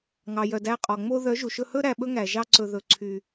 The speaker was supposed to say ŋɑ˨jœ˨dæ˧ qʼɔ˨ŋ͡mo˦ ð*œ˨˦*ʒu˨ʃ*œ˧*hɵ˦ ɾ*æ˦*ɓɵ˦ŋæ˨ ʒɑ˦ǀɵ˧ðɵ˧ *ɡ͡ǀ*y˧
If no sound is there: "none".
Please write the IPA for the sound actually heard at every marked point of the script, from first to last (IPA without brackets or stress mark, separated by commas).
œ˨˦, ɵ˧, æ˧, ǀʰ